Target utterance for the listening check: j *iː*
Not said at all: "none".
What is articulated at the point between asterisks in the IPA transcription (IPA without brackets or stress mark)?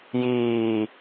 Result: iː